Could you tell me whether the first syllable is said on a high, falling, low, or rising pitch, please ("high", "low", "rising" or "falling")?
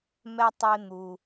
low